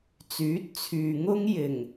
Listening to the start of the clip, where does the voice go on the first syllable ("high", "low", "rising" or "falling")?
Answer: rising